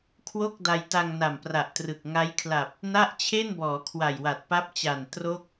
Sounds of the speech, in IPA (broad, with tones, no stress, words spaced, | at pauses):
kʰwo˥˩k̚ da˧jta˧ŋna˨˩mpra˨˩ʔ trɯ˨˩k̚ ŋa˦˥jkʰla˨˩p̚ | na˥˩ʔt͡ɕʰe˥˩nbɔː˩˦ kʰwa˨˩jwa˨˩t̚pa˦˥p̚t͡ɕa˨˩n tro˦˥k̚